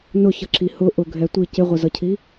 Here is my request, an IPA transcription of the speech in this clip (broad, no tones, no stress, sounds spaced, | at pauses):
n ʊ ç ʌ ǁʰ i h ʊ ʔ ʊ ɡʱ ɛ tʷ i c ɪ ʁʷ ɪ z ʌ cʰ i